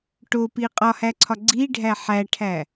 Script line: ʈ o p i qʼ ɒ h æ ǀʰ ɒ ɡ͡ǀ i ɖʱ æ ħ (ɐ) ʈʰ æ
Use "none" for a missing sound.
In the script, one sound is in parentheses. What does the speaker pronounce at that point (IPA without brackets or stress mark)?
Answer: æ